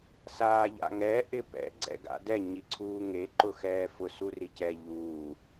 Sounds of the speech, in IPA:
saːʎa̰ŋɛ ʔɪpɛ̰ ɡ͡ǀɛ̰ɡa̰dɛ ɲiǀʰuːŋe ǃʊxɛːfʊ suricɛ ʎuː

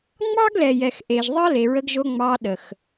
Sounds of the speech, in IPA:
ŋ͡mɑ˦ɡlɛ˨ jɛ˨xʔe˨ʒðˤɑ˦ le˨ɹə˧ɡʒo˧ ŋ͡mɑ˧ɗə˨x

